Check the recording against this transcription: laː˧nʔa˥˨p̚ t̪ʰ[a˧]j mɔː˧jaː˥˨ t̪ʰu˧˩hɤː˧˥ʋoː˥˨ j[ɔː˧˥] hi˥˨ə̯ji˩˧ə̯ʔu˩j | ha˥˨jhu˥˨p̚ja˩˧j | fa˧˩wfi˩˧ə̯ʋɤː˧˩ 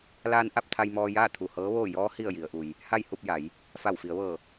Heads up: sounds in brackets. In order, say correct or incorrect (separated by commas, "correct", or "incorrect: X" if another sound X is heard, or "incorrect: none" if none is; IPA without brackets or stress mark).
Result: correct, correct